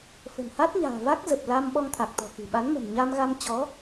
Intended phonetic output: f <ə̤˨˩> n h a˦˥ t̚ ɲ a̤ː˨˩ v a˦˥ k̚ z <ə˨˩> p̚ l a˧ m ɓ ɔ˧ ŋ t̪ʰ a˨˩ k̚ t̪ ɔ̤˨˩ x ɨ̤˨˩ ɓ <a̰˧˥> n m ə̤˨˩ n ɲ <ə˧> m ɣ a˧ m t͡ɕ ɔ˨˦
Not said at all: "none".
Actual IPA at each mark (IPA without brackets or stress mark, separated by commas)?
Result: ə̤˨˩, ə˨˩, a˨˦, a˧